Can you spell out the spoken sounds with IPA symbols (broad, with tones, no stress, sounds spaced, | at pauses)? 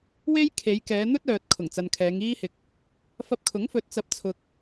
w e˥ j kʰ e˨˧ j k ɛː˨˧ n̪ ɵ˥ t̚ œː˨ t̚ kʰ ʊ˨˩ ŋ t͡s ɐ˨ n kʰ ɛː˨˧ ŋ iː˥ h ɪ˨ k̚ | f ɐ˧ p̚ kʰ ʊ˨˥ ŋ f ɵ˨˥ t̚ t͡s ɐ˨˥ p̚ t͡sʰ ʊ˨ k̚